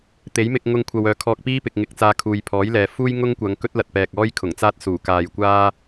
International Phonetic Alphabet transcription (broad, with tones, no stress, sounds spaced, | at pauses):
t̪ e˨˥ j m ɪ˧ k̚ ŋ ʊ˧ ŋ kʷʰ ɐ˨ w œː˨˧ kʰ ɔː˧ k̚ p iː˥ p ɪ˨ k̚ ŋ ɪ˧ k̚ t͡s aː˧ kʰ uː˨ j pʰ ɔː˨˥ j l ɛː˨ f uː˥ j ŋ ʊ˥ ŋ kʷ ɐ˨˧ ŋ k ɵ˥ t̚ l ɐ˨ t̚ p ɛː˨ k̚ ɔː˥ j kʰ ʊ˨˩ ŋ t͡s aː˥ t̚ s uː˨˩ k aː˨ j kʷ aː˥